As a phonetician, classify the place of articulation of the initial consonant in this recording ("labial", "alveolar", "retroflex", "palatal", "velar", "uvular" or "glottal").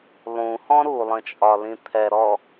alveolar